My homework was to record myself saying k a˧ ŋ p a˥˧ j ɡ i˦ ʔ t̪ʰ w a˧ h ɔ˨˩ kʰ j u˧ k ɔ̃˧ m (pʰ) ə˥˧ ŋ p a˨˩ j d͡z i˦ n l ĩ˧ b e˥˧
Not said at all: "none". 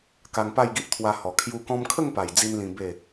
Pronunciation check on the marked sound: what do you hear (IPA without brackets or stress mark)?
kʰ